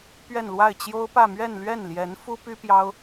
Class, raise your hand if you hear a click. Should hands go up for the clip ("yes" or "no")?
no